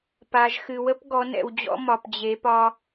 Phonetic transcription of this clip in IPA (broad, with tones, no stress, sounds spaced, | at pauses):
p a˨ ʒ x ɨ˨ w ə˦ p ɡ ɔ˨˦ n ɛ̰˨ w d͡ʑ ɔ̰˦ m ɒ˨ p d͡ʑ e˨˦ p ɒ˦